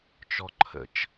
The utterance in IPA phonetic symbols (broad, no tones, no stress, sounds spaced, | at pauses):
t͡ʃ ɔ ǃʰ ə̰ t͡ʃ